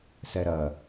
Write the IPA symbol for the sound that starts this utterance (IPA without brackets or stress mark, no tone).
s